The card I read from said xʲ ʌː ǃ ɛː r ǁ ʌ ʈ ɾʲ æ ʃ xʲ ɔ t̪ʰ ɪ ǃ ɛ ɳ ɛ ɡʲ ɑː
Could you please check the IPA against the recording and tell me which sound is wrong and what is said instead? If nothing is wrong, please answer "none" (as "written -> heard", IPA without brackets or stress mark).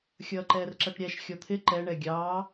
none